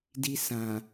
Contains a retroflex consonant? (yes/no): no